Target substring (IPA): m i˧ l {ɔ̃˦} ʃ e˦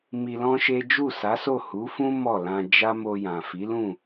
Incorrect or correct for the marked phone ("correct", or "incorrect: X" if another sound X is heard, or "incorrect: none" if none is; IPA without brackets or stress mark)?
correct